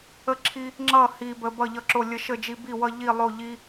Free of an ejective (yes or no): yes